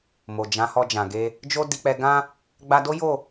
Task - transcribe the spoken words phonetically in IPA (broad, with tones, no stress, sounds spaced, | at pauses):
m o˨ d͡ʒ ã˨˦ h ɔ˧ d͡ʒ ã˨ ɡ e˧ | d͡ʒ o˦ d i˧ k͡p ɛ˧ ɡ ã˦ | ɡ͡b a˧ d o˦ j o˦˨